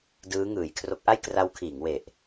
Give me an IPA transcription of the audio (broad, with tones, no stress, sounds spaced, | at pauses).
d ɯː˦˥ ŋ ɯː˩˦ j kʰ r o˦˥ k̚ ʔ a˥˩ j k r a˦˥ w kʰ iː˩˦ ŋ w e˨˩ ʔ